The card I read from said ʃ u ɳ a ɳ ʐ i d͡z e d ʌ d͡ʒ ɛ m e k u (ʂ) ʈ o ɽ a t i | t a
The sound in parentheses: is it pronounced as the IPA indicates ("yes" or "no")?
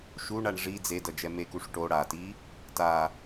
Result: yes